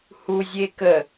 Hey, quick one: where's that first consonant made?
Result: throat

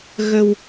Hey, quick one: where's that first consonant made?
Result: velum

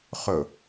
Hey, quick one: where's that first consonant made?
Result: uvula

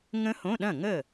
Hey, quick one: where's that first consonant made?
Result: velum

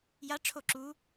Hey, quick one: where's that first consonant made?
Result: palate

